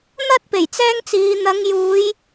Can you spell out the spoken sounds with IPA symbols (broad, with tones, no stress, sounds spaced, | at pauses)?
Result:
n̪ ɐ˥ t̚ p e˨˩ j t͡s ɛː˥ ŋ t͡s iː˨˧ n̪ ɐ˨˧ ŋ j uː˨˧ j